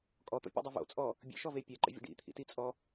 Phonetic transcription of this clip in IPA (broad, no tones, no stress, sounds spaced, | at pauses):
kʼ ɔ t̪ ɔ̰ pʲ o̰ dˤ i v o̰ t͡sʼ ɔ | bʲ ə̰ ʃ ɔ v e pʲ ɛ ǃ ə̰ vʲ ə̰ ɖ ḭ t̪ʰ ḭ t i t͡sʼ ɔ